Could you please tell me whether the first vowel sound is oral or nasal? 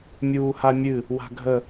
oral